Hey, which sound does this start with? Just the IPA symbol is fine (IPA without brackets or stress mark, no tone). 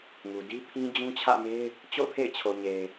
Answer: ŋ